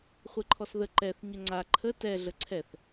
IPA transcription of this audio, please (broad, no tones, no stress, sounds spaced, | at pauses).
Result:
χʷ e ǃʰ ɔ s ð ə ǃ ɛ θ ɲ ə ŋ͡ǀ a ǃʰ ə t ɛ ɮ ə ǀʰ ɛ θ